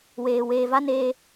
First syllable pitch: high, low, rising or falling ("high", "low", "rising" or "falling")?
low